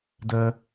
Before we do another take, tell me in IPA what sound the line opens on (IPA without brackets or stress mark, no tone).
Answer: d